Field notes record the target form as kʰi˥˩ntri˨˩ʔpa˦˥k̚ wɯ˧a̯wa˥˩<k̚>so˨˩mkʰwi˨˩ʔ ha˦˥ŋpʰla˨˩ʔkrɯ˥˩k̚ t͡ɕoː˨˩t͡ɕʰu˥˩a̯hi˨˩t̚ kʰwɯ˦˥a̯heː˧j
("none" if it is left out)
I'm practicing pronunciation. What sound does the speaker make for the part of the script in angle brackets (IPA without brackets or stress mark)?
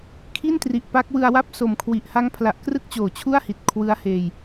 p̚